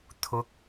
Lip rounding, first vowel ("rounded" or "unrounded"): rounded